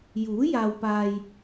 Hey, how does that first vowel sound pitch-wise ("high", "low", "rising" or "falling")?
rising